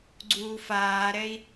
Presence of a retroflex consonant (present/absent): absent